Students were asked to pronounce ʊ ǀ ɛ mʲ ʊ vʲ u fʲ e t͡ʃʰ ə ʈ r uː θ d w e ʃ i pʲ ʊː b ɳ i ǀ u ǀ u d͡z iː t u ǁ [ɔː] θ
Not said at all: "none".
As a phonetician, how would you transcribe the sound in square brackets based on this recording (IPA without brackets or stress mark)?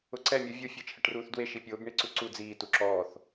ɔː